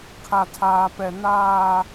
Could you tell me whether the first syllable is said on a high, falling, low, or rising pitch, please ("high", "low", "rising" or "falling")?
high